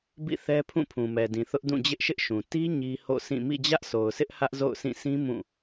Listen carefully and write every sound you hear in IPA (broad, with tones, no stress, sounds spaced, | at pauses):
b ḭ˦˨ θ ɛ˦ pʰ ũ˦˨ pʰ ũ˨ m ɛ˨ d ĩ˨ θ ʊ˦ ʔ d ũ˦˨ d͡ʑ ɪ˦ ʔ ʃ ɪ˦ ʔ ʃ ũ˨ t i˦ ɲ i˦ h o̰˦˨ sʰ ĩ˦˨ m ḭ˦˨ d͡ʑ ä˦ ʔ sʰ o˨ ʊ̯ s ɪ˦ ʔ h ä˦ ʔ z o̰˦˨ ʊ̯ s ĩ˦˨ sʰ ĩ˦ m ũ˦˨